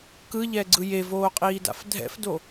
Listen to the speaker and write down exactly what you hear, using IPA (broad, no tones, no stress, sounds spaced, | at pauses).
k ɯ ʎ ɛː ɡ͡ǀ ɯ j e v oː qʼ iː d a̰ f dʱ ɛ̰ f d o